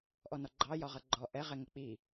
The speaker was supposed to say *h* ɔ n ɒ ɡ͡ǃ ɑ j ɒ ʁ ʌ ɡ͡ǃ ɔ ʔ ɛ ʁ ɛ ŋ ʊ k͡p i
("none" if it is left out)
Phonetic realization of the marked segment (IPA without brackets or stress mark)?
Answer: ʔ